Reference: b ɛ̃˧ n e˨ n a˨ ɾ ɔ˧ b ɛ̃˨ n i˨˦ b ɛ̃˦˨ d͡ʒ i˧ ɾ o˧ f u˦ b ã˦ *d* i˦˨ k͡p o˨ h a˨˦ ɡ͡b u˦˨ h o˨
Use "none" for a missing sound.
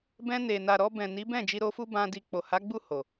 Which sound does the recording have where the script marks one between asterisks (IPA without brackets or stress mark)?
d